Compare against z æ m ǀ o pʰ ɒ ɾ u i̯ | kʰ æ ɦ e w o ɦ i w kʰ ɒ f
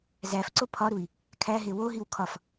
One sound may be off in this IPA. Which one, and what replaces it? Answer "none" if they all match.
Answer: m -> f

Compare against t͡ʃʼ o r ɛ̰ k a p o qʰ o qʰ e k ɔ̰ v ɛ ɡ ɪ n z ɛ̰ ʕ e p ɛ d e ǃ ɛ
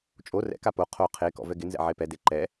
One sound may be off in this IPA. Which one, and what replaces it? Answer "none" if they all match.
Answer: none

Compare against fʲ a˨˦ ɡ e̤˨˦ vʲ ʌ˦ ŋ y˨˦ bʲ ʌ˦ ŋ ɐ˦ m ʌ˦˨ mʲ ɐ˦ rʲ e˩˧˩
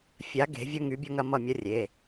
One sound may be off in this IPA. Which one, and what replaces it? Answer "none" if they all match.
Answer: none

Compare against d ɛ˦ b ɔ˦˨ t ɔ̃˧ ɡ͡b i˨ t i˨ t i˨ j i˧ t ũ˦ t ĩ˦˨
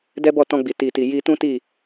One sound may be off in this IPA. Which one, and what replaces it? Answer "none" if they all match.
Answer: ĩ˦˨ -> i˦˨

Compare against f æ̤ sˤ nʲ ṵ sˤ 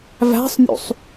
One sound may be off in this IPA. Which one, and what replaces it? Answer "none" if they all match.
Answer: f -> v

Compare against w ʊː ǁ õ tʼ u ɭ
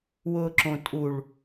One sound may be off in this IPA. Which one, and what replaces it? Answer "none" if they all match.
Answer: none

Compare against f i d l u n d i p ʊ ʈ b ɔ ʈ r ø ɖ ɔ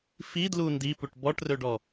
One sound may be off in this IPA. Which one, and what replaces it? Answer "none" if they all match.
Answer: ʊ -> u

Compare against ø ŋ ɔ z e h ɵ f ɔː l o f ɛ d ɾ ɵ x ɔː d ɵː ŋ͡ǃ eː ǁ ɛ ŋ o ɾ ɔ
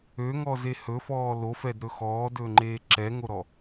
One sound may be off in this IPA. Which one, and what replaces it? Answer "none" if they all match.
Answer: none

